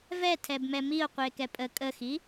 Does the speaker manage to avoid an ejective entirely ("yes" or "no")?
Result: no